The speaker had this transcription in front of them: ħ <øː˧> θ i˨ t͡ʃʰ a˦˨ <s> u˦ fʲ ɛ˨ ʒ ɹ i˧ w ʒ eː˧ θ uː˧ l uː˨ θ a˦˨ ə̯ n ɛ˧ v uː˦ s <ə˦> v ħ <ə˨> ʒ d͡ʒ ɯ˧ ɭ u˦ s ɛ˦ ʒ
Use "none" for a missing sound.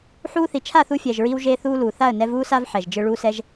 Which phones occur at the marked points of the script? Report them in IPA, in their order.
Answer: uː˧, θ, a˦, ɛ˨

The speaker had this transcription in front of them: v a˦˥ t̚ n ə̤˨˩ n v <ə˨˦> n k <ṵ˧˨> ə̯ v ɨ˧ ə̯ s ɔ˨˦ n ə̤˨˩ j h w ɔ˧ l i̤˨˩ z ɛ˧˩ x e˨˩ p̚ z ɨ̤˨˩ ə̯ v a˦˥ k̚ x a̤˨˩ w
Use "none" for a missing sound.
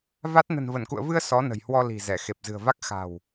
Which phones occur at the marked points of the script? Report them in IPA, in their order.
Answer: ə˧˩, ṵ˧˨

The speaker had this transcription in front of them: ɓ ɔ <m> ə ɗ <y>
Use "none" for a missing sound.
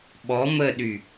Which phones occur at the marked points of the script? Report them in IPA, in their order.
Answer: m, y

